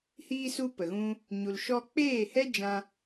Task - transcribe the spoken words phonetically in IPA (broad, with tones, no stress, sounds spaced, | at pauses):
h iː˧ s u˧ p ə˨ ɣ ũ˧ | ɲ u˨ l ʃ ɔ˧ k͡p eː˦˨ h ɛ˦ d͡ʒ ã˦